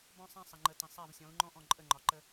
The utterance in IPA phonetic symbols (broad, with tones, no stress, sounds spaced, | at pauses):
b ɔ̃˦ sˤ ã˦ sˤ ə˨ ŋ͡ǃ ə˨ t ə̃˨ sˤ a˦˨ v sʲ ɔ̃˨˦ u̯ ŋ͡ǃ ɔ̃˦ ʔ ɔ̃˦˨ ǃʼ ə˦˨ ŋ͡ǃ ɒ˨ ǃ ə˦